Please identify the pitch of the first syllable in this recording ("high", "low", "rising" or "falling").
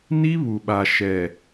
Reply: high